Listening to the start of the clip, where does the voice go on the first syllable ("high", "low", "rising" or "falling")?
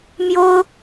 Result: high